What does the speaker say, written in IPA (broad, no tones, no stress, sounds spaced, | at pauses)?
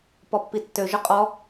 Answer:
p ɔ pː i tː ø ʒ ʊ qʼ ɔ